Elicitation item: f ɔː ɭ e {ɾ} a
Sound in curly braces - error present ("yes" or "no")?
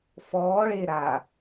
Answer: no